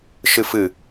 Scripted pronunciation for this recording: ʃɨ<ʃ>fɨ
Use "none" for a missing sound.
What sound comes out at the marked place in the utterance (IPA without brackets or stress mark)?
none